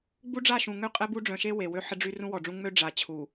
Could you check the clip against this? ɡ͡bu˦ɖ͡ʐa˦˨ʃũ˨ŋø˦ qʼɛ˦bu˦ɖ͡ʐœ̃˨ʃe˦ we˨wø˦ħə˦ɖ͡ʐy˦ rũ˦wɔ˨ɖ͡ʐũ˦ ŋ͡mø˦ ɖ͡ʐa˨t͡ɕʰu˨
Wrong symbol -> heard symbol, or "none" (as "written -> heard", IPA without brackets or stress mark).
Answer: none